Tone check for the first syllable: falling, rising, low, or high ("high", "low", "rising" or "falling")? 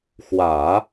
low